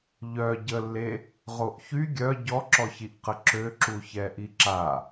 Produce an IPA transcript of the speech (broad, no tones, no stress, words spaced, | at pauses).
ʎœ ɟəlːe | ʁoʔçy ɡʲœ ɟɔǁɔçiʔqə ǁøǁu çɛʔiǁa